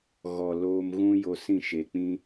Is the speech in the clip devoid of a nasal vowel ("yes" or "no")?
no